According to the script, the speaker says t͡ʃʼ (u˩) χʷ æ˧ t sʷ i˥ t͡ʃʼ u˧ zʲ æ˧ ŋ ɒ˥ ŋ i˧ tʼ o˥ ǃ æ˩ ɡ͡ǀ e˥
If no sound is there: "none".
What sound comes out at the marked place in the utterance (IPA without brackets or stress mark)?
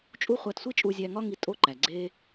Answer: u˥